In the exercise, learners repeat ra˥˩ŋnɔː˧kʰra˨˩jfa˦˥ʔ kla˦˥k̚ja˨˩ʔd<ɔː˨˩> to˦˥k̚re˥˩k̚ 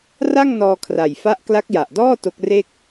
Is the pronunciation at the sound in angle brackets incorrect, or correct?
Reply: incorrect